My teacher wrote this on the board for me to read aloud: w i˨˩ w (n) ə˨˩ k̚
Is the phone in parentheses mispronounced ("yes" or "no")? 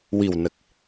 no